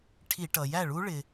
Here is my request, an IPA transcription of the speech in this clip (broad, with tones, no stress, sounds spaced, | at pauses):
ʈʰ i˧˩˧ ʈ ʌ˩ j æ˥˩ ɭ u˦˥ ɭ ɪ˩